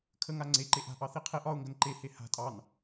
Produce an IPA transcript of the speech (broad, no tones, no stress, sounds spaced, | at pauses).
kʰ ə ŋ a ŋ͡ǀ e ǃ e ʔ a̤ ʔ ɑ θ i qʰ e ʔ ɒ ʊ̯ ŋ ɡ ə n ǃ e h e h a̤ tʼ ɑ n